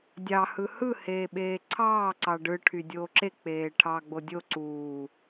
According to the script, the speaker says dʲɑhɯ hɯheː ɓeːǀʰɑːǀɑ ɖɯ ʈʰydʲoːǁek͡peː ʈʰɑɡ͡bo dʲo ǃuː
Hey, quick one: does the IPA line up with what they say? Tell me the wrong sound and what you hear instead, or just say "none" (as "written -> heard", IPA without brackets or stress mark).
ǃ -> ǀ